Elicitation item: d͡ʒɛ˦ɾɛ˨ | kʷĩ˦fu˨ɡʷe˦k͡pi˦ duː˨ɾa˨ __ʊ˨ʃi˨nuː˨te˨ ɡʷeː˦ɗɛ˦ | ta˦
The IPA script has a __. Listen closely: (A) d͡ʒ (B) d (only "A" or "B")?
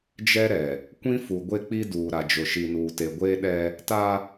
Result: A